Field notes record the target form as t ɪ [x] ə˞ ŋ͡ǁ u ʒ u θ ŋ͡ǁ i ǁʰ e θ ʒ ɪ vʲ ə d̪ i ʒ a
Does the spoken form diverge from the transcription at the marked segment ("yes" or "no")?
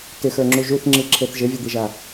no